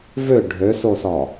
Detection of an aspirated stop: absent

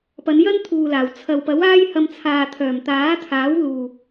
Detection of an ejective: absent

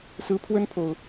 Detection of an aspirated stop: present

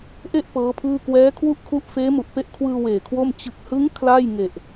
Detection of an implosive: absent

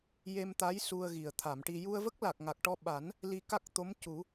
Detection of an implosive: present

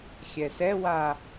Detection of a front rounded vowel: absent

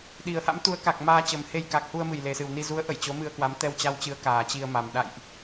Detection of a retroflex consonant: absent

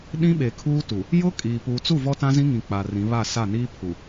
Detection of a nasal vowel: present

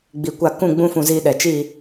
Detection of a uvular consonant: absent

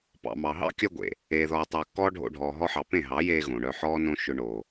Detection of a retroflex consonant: present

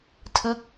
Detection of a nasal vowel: absent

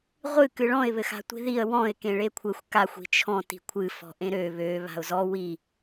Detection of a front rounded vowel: present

